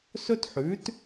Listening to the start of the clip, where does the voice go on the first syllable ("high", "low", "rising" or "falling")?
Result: high